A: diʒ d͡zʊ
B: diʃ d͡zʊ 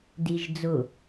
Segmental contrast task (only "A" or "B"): A